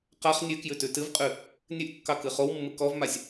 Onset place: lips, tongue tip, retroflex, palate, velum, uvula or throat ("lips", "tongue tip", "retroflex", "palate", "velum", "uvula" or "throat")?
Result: uvula